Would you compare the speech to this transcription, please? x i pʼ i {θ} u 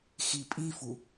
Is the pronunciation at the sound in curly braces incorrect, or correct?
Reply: incorrect: f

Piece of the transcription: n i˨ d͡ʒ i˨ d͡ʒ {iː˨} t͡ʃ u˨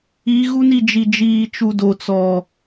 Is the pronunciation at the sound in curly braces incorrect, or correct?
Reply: correct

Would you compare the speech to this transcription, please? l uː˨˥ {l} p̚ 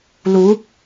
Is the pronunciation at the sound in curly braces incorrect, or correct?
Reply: incorrect: none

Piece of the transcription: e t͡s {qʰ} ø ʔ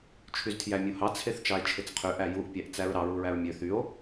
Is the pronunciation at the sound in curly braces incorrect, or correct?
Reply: correct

